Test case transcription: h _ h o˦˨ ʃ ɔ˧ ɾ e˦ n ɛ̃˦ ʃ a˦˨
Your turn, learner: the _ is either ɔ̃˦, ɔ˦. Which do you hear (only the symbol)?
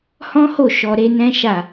ɔ̃˦